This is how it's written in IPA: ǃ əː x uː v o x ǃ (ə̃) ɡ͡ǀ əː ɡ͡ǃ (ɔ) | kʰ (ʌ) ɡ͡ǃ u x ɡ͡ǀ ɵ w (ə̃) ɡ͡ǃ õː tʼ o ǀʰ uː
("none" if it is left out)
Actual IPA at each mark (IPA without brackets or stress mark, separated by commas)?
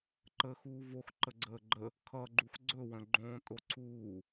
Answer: ə, ə, ʌ, ə̃